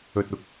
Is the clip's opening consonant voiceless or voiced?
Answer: voiceless